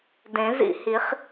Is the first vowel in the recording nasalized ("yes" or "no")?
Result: yes